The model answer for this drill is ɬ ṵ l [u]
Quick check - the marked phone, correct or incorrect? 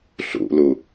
correct